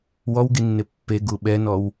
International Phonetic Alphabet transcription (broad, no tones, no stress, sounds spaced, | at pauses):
w ɔ w ɡ i nː ɪ pː e ɡ u ɓ ɛ n ɔ w